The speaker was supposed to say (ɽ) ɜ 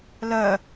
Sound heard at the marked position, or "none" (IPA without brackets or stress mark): l